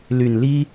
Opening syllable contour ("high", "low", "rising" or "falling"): low